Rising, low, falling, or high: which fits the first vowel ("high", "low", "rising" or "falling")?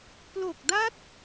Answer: low